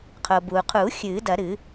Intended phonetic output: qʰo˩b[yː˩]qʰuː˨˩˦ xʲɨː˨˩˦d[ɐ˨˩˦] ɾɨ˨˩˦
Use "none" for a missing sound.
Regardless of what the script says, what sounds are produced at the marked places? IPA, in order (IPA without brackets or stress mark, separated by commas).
uː˩, ɐ˨˩˦